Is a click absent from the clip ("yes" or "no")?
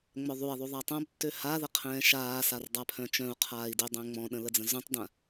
yes